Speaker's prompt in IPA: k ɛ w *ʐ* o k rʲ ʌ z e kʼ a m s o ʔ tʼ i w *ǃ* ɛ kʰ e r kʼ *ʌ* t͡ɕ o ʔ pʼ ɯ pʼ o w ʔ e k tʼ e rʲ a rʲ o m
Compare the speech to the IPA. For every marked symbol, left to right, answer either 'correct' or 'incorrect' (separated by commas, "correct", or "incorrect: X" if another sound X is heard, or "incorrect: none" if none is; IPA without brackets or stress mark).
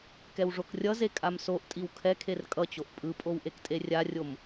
correct, incorrect: kʰ, correct